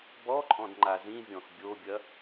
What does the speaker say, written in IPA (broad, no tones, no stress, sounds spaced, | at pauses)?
b ɔ ǃʼ ɔ̃ d ŋ͡ǃ a z ĩ vʲ ɔ̃ x bʲ o bʲ ɐ